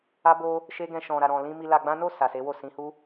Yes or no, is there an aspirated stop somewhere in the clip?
no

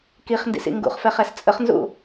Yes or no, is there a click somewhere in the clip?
no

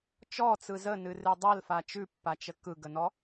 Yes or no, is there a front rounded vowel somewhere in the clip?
no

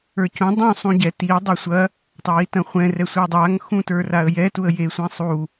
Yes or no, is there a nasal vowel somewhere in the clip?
yes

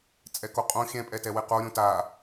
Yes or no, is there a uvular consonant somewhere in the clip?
yes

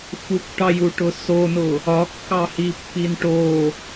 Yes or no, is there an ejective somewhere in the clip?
no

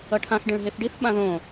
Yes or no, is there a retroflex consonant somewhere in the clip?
yes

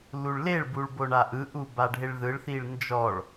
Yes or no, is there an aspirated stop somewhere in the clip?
no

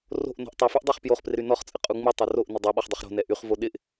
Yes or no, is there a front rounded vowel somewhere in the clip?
yes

